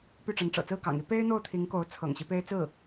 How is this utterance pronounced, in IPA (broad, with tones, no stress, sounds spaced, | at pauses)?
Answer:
p y˥˩ ʈ͡ʂ ə˧˥ n ʈ͡ʂ ɤ̰˨˩ t͡s ɹ̩˥˩ k ɑ̰˨˩ ŋ i˥ p e˥ ɪ̯ n̪ o˥˩ ʊ̯ t̪ʰ i˧˥ ŋ k o˧˥ ʊ̯ t͡sʰ ɤ̰˨˩ ŋ ɕ i˦ p e˥ ɪ̯ t͡s ɹ̩˥˩